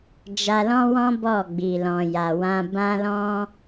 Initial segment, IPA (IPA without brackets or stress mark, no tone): d͡ʒ